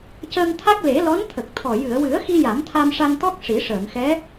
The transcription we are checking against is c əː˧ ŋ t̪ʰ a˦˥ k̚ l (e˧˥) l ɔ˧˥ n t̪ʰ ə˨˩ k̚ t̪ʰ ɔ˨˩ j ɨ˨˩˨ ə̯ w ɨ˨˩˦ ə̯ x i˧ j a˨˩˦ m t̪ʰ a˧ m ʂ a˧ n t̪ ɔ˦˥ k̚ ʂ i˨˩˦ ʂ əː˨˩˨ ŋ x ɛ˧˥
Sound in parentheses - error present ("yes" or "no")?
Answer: yes